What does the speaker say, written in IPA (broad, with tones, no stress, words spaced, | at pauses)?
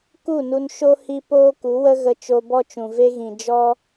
ku˦˨ nu˦n ʃo˦ hi˧ poː˦ku˨˦wə˦ ɣə˧t͡ʃo˧bɔ˦t͡ʃũ˨ ve˦ɣĩ˨ d͡ʒɔ˦